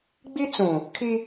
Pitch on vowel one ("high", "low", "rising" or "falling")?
high